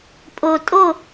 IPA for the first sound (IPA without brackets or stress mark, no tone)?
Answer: pʼ